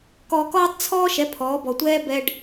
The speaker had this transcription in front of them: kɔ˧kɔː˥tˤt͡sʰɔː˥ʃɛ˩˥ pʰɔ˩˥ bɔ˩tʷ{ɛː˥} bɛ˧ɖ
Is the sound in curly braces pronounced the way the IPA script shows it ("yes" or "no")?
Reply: yes